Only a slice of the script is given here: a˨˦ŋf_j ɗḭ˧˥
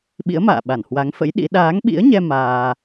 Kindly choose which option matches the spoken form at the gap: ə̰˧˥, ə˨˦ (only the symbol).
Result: ə̰˧˥